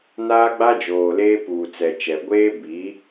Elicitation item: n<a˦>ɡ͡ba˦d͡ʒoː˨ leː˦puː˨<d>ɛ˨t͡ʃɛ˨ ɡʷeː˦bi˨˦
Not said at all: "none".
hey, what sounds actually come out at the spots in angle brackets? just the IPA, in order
aː˦, t͡s

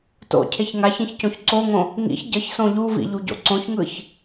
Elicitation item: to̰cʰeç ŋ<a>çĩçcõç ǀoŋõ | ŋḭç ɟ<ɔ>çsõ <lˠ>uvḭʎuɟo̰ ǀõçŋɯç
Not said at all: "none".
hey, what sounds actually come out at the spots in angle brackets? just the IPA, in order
a, ʌ, ʎ

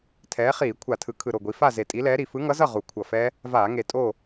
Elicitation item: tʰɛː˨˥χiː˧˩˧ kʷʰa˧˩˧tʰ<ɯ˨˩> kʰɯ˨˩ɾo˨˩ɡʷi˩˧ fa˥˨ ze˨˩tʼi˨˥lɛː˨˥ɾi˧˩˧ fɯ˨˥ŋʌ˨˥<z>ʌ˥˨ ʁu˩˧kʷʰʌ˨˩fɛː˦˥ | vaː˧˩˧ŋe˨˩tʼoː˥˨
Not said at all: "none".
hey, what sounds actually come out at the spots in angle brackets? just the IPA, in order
ɯ˩˧, z

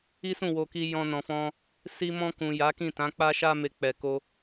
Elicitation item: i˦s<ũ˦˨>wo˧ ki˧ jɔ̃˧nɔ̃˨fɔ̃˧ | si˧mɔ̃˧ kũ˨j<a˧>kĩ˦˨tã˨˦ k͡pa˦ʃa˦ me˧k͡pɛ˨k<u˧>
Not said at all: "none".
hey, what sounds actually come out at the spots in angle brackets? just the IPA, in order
ũ˦˨, a˨˦, o˧

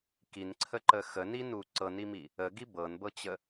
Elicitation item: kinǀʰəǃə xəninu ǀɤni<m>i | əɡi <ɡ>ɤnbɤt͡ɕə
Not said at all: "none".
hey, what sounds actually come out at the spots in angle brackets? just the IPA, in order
m, b

